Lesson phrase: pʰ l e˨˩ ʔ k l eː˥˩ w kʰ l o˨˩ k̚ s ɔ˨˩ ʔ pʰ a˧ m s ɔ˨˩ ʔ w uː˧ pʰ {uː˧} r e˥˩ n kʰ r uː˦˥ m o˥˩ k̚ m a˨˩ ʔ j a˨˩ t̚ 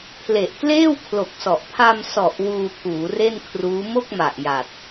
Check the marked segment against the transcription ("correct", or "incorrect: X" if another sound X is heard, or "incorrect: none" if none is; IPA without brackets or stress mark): incorrect: uː˩˦